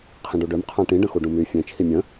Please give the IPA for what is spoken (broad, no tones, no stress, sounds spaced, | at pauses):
qʰ ĩ ɖ u ɖ ø m qʰ ã ʈ ĩ ɖ ə̃ x u ɖ ũ m y fʲ ẽ t͡ʃʰ i mʲ ə̃